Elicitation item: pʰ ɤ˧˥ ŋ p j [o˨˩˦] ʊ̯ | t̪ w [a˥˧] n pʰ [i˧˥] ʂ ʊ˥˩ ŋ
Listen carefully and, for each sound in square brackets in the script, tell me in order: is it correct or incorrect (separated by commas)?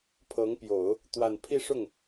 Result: correct, correct, incorrect